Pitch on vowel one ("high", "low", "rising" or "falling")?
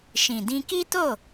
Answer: low